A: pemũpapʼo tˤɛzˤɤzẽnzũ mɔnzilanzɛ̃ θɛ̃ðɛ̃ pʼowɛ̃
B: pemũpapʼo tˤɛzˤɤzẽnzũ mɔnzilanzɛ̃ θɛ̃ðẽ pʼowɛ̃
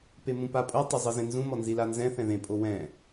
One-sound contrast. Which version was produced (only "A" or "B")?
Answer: B